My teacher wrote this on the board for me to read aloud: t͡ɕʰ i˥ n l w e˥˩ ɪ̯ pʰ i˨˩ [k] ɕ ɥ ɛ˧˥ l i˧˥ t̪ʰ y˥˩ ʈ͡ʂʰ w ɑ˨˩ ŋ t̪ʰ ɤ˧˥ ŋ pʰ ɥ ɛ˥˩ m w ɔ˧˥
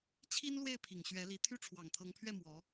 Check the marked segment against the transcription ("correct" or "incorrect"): incorrect